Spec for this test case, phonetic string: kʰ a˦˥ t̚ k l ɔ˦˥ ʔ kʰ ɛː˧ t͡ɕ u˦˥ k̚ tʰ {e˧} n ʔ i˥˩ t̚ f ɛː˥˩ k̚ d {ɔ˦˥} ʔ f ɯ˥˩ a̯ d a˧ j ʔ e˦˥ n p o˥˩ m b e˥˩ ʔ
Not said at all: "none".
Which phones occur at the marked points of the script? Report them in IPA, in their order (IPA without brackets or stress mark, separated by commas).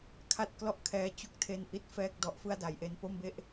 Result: e˧, ɔ˦˥